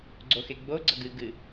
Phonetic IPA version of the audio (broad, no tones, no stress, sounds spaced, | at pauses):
ɡ͡ǀ o x e ɡ͡b o ɡ͡ǀ ʌ ɡ ɨ ɡ ɨ